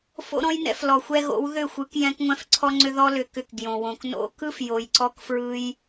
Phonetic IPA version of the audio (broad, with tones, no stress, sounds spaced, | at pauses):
f o̰˧ ɾ ɔ̃˧ j n ɛ̰˧ f l ɔ˨ xʷ ɛ˧ ɣ o̰˨˦ w ð ʏ˦˨ xʷ ɯ˨˦ k j ɛ̃˧ k ŋʷ ɛ̃˧ f ǀʰ ɔ˧ ŋ͡ǀ ʏ˧ ð ɔ˧ l ʏ˨ k ʏ˧ k ɡ j õ˨ w õ˨ k n o̰˧ k ɯ˦ f j o˨ j ǀ ɔ˧ k f ɹ ɯ˧ j